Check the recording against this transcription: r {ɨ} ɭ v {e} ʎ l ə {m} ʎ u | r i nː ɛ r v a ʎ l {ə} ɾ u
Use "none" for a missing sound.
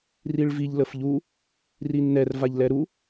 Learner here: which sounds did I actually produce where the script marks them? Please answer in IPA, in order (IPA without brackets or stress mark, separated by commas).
i, i, f, ɛ